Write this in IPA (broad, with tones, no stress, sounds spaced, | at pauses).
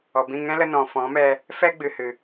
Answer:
ɔ˨ b ĩ˦˨ ŋ ɛ̃˦ l ə˧ n ɔ̃˨ f ɔ̃˨˦ m ɛ˧ | f ɛ˦ ɡ͡b ɨ˨ h ɨ˨